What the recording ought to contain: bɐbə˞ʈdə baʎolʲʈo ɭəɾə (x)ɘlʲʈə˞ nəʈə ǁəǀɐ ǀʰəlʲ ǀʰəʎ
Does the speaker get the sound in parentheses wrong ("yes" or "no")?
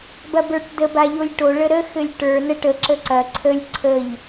no